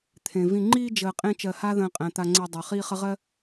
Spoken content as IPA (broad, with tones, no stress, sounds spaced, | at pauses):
t̪ʰ ẽ˩ v ĩ˨ ŋ͡ǃ iː˥ d͡ʒ əː˨ qʼ ẽ˦ t͡ʃ ɜ˨ h a˦ ð ə̃ː˨ qʼ æ̃˩ t̪ a˨ ŋ͡ǀ e˨ dˤ ɜ˩ χ iː˦ χ ə˦ ʁ ɜ˥